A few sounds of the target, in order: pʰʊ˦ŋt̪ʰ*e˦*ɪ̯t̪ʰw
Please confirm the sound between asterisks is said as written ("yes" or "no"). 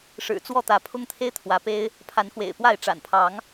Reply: yes